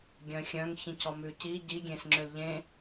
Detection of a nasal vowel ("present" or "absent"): present